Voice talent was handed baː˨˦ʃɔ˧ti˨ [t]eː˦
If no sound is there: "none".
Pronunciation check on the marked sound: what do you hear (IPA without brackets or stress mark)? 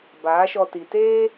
t